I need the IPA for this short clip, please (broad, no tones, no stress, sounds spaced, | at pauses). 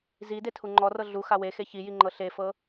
z i d e tʰ u ŋ͡ǃ ɔ r ɤ ɮ u x a w e x e ç i j i ŋ͡ǃ ɤ ɬ e f ɤ